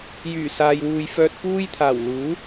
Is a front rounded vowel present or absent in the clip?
present